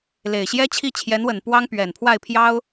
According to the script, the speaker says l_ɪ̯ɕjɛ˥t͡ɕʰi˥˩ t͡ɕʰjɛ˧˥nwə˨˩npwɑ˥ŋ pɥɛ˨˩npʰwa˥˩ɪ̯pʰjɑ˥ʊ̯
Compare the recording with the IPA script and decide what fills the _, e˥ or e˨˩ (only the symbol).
e˨˩